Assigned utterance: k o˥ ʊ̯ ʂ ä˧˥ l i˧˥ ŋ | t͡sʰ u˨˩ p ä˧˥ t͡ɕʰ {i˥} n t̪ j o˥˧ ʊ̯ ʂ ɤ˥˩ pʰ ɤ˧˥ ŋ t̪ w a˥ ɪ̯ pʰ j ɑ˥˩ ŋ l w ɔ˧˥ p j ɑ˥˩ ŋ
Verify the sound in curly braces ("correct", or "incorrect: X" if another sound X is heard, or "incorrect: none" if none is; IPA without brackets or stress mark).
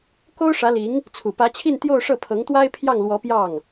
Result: incorrect: i˥˧